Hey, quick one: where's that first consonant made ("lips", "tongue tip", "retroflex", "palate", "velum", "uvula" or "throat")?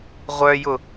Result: uvula